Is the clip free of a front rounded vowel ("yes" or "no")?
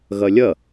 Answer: yes